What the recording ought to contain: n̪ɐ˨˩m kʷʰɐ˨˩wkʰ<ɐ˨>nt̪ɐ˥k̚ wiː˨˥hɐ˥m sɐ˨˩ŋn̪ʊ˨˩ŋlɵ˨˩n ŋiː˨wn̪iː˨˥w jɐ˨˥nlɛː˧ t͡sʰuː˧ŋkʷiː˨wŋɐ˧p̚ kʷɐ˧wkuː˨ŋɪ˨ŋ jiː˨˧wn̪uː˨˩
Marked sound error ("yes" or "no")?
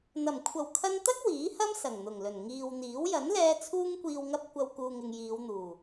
yes